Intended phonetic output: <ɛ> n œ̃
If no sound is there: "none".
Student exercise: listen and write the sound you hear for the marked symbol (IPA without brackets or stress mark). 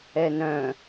ɛ